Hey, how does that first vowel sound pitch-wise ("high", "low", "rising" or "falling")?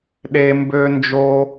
high